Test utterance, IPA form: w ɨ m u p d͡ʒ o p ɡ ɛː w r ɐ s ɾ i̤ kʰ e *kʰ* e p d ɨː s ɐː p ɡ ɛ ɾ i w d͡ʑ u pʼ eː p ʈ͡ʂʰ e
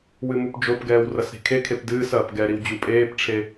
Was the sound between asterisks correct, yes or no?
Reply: yes